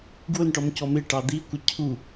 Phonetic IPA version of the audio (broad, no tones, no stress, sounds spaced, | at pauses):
ɡ w ʊ n ʈ ɔ m c ɔ m ɪ ʈ ɑ d̪ i kʷ ə cʰ u